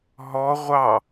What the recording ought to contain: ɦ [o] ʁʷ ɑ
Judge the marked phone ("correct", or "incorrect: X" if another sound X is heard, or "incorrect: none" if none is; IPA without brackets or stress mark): incorrect: ɔ